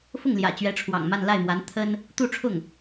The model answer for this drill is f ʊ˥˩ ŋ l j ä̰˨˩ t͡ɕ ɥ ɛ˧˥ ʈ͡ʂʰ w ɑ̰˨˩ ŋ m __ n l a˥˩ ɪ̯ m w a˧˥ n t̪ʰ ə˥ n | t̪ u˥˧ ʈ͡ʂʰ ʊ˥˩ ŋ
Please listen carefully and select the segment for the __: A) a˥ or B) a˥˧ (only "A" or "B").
B